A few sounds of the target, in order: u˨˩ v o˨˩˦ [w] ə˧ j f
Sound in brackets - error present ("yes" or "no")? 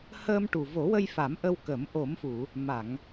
no